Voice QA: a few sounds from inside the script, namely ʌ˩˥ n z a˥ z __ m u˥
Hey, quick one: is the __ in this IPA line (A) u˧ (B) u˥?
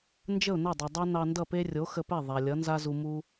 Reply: A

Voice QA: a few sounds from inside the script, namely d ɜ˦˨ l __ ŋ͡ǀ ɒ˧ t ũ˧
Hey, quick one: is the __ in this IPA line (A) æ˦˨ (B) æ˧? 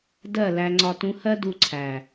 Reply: B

